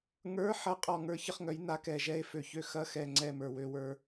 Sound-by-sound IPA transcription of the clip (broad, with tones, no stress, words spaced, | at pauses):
ŋə˞˧˥˧ ħɐ˧˥˧ qʼɔ˧˩ŋə˞˧˥çə˥˨χŋœ˩˥j na˧˥kɛ˧˩ʒɛ˥˨e̯ fø˧˩çø˥˨ xɐ˧˥˧xɛ˧˩ŋ͡ǀɛ˧˩ mə˞˧˩wø˥˨wə˞˧˥